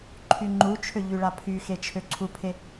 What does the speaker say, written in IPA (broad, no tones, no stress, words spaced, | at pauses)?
ǃʰyŋ͡ǃut͡ʃʰø ʎyɭapʰyxe t͡ʃʰøǀʰupʰe